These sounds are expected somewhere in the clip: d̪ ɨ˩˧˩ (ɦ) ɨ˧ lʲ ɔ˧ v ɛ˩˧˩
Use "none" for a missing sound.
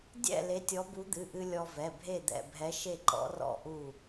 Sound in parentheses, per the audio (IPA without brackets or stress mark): ʔ